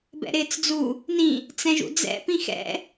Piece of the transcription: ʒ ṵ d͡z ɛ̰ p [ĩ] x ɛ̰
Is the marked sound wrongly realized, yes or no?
no